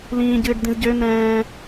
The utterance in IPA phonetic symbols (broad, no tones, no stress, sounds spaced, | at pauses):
l ĩː ɟ ɨː ɖ d̪ ĩ z ɟ ø n̪ ɛ̃ː